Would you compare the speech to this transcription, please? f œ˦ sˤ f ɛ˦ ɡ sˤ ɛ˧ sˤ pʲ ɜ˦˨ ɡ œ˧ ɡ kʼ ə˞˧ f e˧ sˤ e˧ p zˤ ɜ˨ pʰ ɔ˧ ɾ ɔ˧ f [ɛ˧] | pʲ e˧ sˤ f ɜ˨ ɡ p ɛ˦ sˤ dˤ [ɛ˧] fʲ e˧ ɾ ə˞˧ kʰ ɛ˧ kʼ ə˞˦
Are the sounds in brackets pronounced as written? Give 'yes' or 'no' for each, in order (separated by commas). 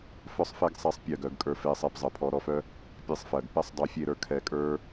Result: no, no